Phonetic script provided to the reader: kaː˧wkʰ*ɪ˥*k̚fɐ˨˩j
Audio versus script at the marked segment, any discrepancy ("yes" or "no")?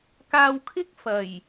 no